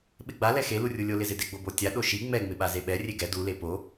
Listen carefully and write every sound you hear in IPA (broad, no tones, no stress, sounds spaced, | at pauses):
ɓ ɪ ɡ͡b a l ɛ x e l u rʲ u lʲ o l ɪ z ɪ d ɪ ɡ͡b o b o tʲ a ɗ o ʃ i ŋ͡m ɛ ŋ͡m ɪ ɓ a z e ɓ ɛ rʲ e ɡ ɛ d u l e p o